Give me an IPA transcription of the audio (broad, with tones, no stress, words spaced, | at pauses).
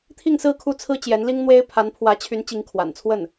t̪ʰi˥˧ŋsɹ̩˥˧ kʰu˥˩t͡sʰɹ̩˥ t͡ɕjɛ˧˥nli˥ŋn̪we˥ɪ̯ pʰa˧˥npʰwä˧˥ t͡ɕʰy˧˥n t͡ɕi˧˥ŋ kʰwa̰˨˩nt͡sʰwə˥˩n